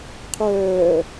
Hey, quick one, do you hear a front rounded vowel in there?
yes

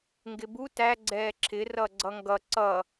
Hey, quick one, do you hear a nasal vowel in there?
no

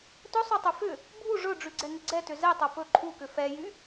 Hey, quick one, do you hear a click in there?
yes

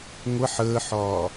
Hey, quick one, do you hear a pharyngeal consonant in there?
yes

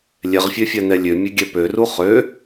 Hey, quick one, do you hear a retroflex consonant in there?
no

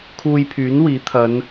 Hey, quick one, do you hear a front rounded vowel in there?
yes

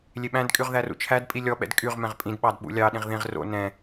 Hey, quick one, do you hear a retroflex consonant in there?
no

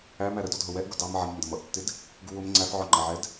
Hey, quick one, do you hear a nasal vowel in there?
no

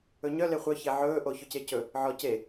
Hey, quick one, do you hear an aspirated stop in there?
no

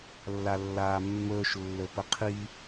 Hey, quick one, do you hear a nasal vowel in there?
no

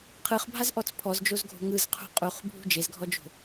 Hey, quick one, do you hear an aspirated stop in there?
yes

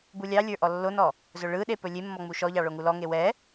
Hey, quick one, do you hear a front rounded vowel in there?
no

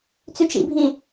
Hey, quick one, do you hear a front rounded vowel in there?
yes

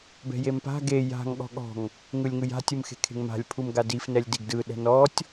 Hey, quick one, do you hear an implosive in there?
yes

